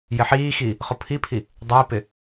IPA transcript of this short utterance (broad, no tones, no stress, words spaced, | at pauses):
jɪħiːxi | χʊpʰipʰi | dˤɪːpɪ